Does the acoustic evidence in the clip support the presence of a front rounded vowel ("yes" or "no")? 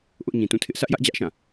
no